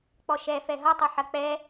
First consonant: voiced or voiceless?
voiceless